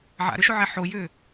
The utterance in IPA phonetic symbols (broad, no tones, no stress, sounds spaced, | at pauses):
ʕ a̰ ɾ ʏ ʃ ʊ ʕ ɛ ħ o j ʏː